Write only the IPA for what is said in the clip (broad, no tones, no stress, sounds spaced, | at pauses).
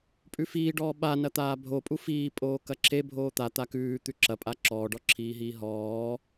pʼ ʉ f iː ɖ ɔː ɓ a n ɐ t̪ aː bʱ o pʼ u f iː pʼ oː k ɐ ǁʰ e bʱ oː t̪ a t̪ a k ʉː t̪ ʉ ǁ ɐ pʼ a ǁ ɔː ɖ ɔ ǁʰ iː ɦ iː ɦ ɔː